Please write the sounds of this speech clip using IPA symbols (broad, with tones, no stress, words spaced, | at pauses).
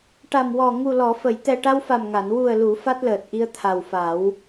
ʈa˨˩mwɔ˨˩ ŋu˨˩lɔ˨˩˨fə˨˩˨jt̪ɛ˨˩ ʈa˧wfa˨˩mŋa˨˩˨n wu˨˩ə̯lu˨˩˨ fa˦˥t̚ləː˨˩t̚ʔi˧ə̯ t̪ʰa˨˩wfa˨˩˦w